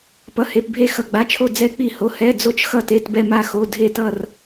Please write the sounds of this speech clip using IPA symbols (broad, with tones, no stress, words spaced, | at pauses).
pʌ˩˧˩he˩˧˩p bʱe˧˩xʌ˩˧˩ɡ͡ba˩˧˩t͡ʃʰo˧˩ d͡zɛ˧˩k͡pi˧˩ho˩˧˩ hɛ˩˧˩ d͡zo˧˩t͡ʃxʌ˧˩te˩˧˩t bɛ˧˩ma˧˩xo˩˧˩ dʱe˧˩tʌ˧˩r